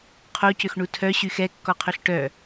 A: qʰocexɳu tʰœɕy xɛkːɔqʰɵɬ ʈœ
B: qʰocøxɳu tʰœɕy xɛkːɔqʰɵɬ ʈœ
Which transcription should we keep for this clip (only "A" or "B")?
B